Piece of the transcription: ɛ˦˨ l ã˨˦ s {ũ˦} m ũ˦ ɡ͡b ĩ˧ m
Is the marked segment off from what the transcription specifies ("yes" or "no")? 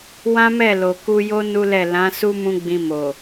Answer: yes